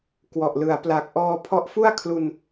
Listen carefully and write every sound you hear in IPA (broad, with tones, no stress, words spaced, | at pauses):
kwɔ˨˩ʔlɯ˩˦a̯ pla˨˩k̚ʔɔː˧ pʰɔ˦˥ʔfu˥˩a̯kʰlu˧n